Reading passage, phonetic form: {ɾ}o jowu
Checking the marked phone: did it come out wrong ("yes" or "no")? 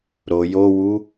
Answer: no